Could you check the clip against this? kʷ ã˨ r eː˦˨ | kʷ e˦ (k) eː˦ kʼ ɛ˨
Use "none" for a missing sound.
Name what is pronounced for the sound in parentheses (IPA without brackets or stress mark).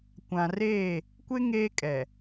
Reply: ŋ